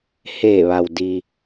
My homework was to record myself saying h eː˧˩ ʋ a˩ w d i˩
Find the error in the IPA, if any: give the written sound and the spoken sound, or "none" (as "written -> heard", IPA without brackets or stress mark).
none